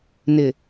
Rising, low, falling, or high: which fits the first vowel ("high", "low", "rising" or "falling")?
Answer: low